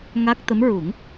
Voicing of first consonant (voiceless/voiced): voiced